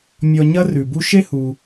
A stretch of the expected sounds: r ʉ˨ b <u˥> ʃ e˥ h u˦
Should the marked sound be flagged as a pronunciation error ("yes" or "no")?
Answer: yes